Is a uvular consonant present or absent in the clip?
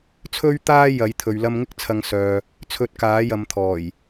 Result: absent